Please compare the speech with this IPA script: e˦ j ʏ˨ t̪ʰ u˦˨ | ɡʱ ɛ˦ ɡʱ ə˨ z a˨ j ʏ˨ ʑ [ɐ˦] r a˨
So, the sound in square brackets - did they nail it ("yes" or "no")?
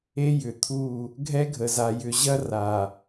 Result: yes